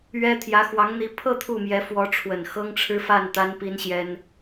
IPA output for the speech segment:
ɥɛ˥ t̪ʰjä˧˥xwɑ˧˥ŋn̪i˧˥ pʰɤ˥˧ t̪ʰu˥˩mjɛ˧˥ fwɔ˧˥ʈ͡ʂʰwə˨˩n xɤ˥ŋʈ͡ʂʰɻ̩˥fa˥˩n t̪a˥npi˥nɕjɛ˥n

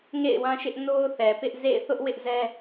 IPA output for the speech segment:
ŋḛ˦˨ɪ̯wã˦ʃɪ˦ʔ no˦ʊ̯θɛ˨pɪ˦ʔ zḛ˦˨ɪ̯ θʊ˦ʔwɪ˦ʔzɛ˦

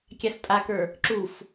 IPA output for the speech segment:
kʲastʼakə˞ | ǁuf

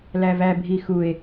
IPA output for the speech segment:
lævæ bʱixue̯

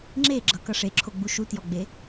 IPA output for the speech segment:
ŋ͡ǁeɡ͡ǁʌ kʌʂeǁʰoɡ͡bu ʃutjɔɡ͡be

